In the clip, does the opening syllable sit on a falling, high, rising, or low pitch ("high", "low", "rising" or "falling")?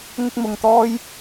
high